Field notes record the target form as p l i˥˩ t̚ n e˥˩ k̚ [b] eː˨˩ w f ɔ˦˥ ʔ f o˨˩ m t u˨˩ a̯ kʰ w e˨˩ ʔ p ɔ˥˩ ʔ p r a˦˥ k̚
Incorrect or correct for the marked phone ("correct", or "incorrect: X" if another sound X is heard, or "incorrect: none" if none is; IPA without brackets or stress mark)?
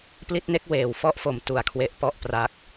incorrect: w